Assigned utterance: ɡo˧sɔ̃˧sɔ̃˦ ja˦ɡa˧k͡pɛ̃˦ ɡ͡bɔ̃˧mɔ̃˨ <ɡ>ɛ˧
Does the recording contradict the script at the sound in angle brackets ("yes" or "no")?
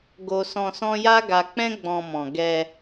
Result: no